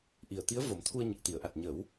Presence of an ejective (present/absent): absent